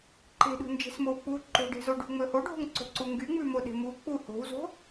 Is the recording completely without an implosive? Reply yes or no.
no